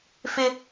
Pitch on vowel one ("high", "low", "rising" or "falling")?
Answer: high